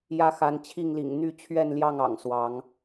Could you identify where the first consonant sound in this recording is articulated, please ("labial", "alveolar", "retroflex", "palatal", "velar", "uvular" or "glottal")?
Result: palatal